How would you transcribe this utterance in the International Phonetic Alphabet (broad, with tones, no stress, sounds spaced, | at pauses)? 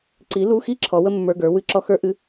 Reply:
ǀ i˨˥ l u˧˥˧ x i˥ ǁʰ ɔ˨˥ w ə˥ mː ə˞˧˥˧ ɡ ə˞˨˥ w ɨ˧˥˧ ǁ ɔ˥ x ə˞˥ ʔ ɨ˥